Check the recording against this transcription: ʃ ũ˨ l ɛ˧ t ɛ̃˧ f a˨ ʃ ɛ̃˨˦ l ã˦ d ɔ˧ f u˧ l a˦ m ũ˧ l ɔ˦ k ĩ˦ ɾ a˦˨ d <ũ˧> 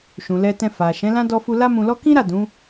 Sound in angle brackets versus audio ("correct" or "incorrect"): incorrect